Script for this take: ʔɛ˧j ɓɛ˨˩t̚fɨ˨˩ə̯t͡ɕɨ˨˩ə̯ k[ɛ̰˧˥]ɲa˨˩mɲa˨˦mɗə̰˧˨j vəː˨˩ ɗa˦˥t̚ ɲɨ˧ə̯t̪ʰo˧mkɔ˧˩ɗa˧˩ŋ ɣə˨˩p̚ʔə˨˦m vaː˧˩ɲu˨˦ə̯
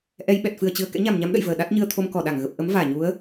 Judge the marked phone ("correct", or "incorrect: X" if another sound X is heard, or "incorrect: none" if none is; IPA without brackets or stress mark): correct